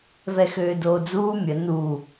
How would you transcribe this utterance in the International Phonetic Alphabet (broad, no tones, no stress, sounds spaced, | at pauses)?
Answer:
v ɛ x øː d oː d͡z uː mʲ ə n u